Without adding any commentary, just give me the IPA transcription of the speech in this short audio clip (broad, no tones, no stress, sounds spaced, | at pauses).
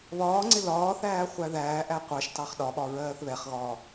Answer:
β ɒː ŋ͡ǀ ɪ l ɒː θ æː χʷ æ ð æː ʔ æ qʷ ɑ ʃ t ɑ χ ɗ ɒ ɓ ɒ ɹ ɜː θ β ɛ χ ɣ ɒː